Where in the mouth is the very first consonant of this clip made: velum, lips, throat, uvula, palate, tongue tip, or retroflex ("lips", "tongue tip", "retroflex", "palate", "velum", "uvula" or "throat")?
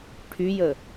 retroflex